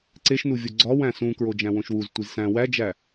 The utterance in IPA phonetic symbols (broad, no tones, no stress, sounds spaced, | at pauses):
ǀ e ʃ n u vʲ o ɡ͡ǀ ɒ w æ̃ s ũ k ɹ o d͡ʒ æ̃ w õ ʃ w u z tʷ i z s æ̃ w æ d͡ʒ æ